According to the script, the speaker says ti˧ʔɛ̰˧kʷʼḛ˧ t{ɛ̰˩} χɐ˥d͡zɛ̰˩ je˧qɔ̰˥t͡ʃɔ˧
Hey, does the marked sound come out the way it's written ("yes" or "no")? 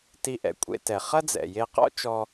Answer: no